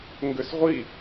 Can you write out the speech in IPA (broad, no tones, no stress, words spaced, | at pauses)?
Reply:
ŋɡʏsʁʷi